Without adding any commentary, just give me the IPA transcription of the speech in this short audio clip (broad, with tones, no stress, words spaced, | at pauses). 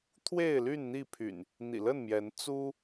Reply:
t̪ʰwe˥˨ɪ̯ly˥˨n n̪i˥˨pʰy̰˨˩n | n̪ḭ˨˩lə˥˨n mjɛ˨˦n t͡su˦